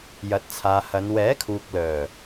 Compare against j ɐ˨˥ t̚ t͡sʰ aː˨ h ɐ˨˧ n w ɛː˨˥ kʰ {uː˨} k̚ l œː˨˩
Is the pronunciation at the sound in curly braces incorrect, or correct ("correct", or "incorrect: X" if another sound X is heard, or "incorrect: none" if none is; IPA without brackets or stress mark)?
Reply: correct